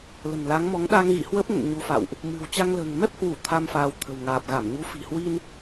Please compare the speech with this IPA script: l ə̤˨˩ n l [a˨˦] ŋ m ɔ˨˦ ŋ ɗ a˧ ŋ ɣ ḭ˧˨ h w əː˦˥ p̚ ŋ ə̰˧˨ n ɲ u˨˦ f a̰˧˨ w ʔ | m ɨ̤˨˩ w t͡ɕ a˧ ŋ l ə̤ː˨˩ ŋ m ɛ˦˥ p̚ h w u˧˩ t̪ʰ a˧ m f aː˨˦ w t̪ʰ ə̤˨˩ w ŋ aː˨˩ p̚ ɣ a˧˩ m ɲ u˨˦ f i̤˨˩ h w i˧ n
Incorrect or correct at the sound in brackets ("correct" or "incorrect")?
correct